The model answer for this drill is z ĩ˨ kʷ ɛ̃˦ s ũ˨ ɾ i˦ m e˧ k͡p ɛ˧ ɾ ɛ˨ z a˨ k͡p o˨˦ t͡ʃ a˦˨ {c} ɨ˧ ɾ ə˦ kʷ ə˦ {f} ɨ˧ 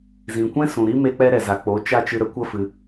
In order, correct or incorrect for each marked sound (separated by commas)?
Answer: incorrect, correct